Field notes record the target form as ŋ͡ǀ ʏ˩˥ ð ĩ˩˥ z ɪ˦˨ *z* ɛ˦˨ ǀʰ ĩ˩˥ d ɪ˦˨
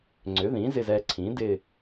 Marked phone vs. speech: correct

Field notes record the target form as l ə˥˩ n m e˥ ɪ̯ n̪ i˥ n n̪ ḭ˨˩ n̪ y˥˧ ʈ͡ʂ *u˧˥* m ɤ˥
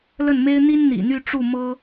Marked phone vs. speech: incorrect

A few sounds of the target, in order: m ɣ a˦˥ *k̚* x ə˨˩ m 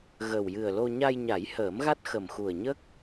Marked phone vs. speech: incorrect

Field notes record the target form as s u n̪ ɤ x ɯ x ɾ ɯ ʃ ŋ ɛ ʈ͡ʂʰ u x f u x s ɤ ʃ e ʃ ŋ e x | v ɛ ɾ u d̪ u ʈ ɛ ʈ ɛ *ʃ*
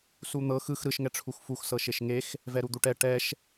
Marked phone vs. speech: correct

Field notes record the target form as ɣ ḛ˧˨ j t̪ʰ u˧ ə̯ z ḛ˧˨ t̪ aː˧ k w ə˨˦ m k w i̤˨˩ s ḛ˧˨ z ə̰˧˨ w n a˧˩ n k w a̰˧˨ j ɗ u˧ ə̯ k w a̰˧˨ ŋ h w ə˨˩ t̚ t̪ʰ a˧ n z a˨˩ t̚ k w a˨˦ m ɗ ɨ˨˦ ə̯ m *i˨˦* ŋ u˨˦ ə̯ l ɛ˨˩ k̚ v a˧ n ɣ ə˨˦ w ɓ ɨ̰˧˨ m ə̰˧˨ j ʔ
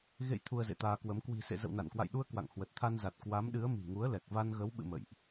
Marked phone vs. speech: incorrect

